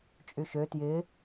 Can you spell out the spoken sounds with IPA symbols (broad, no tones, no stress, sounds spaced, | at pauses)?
t͡ʃʼ y ʃ ø t j ɪː